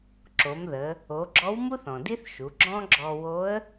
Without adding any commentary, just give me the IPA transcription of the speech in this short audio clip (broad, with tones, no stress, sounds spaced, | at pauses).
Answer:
ǁ o˩˧ m ð ə˩˧ | o˩˧ ɡ͡ǁ ɔ˧˥ w m u˥ θ ɔ̃˩ d i˥ θ ʃ u˩˧ ɡ͡ǁ ɔ̃˥ ɡ͡ǁ ɔ˧ w o˧˥ ə̯